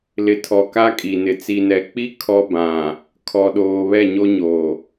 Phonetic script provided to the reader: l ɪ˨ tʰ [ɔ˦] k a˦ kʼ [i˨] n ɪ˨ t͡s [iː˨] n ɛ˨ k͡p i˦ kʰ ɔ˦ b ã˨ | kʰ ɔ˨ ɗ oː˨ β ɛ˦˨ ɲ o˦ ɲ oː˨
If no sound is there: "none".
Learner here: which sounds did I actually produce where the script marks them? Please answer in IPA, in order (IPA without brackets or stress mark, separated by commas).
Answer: ɔ˨, i˨, i˨